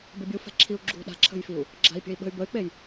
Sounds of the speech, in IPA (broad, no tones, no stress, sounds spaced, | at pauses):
b ɪ bʲ u f ɛ̤ ǁʰ i u̯ ɡ͡ǁ ṳ ɗ a̤ ǁʰ ə̤ j f i u̯ | ɡ͡ǁ a̤ i̯ pʲ ə̤ i̯ ɓ ə̤ y̯ b ə y̯ k͡p e j